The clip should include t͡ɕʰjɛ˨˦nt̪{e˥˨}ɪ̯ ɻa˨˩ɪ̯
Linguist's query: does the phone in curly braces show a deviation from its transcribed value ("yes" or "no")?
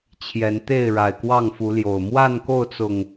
no